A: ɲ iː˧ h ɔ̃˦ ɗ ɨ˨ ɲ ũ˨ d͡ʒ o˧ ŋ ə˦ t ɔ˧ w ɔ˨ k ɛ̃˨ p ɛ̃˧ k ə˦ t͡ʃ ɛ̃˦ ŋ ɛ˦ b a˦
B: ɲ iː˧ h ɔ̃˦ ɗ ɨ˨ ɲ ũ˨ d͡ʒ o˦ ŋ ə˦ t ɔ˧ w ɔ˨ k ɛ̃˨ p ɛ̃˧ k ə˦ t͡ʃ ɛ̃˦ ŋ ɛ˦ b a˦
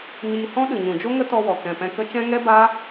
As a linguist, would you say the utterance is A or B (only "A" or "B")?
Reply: B